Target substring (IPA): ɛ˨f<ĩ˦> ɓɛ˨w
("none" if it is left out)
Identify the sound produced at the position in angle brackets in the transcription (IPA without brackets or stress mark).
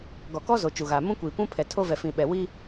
ĩ˨